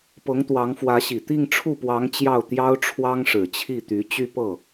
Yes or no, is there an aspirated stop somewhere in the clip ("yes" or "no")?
yes